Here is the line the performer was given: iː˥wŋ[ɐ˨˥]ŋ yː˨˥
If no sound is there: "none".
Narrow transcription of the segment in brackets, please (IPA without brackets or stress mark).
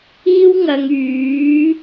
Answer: ɐ˨